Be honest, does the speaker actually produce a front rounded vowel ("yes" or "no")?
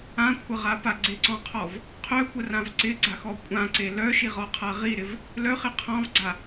yes